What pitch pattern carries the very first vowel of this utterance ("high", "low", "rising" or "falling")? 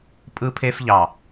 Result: high